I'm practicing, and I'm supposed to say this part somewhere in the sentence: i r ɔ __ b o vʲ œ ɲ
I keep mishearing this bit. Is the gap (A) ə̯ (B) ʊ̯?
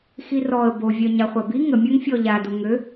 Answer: A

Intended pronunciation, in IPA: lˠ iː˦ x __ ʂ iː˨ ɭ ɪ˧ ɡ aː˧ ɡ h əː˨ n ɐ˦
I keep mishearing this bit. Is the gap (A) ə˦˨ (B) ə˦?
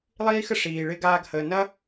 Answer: B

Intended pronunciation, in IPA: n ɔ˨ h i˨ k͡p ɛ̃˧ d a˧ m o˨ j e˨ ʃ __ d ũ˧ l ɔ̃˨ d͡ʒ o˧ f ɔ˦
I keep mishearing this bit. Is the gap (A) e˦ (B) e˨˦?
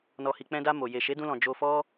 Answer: B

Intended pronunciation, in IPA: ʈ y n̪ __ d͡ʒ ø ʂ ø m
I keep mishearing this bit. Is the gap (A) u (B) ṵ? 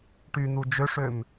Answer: A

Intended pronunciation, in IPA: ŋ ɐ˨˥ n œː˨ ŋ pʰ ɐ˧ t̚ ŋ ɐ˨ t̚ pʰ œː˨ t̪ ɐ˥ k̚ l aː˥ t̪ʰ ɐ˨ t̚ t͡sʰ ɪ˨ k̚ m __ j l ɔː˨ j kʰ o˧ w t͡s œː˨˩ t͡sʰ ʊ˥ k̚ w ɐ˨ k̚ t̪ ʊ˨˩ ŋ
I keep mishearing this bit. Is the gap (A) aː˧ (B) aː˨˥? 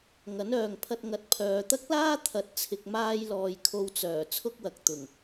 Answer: A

